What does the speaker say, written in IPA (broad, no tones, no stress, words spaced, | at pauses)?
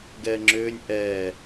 ɡɛːŋ͡ǁʏːnʲ ʔɛː